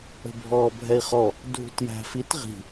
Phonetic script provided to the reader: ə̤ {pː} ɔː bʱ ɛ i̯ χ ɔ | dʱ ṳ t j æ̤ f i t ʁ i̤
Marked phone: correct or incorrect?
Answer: incorrect